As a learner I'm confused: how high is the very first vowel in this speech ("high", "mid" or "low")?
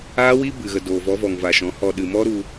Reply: low